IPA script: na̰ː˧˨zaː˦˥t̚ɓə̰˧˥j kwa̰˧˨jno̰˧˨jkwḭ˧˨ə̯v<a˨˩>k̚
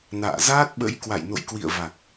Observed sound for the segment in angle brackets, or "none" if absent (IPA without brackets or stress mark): a˨˩